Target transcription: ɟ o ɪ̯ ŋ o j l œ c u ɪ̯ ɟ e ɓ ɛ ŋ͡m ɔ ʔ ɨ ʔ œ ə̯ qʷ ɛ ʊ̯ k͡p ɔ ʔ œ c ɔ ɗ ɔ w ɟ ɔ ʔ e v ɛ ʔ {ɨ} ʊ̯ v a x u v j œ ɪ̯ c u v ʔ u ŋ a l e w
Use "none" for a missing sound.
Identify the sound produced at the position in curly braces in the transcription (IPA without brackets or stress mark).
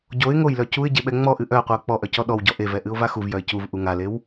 ɨ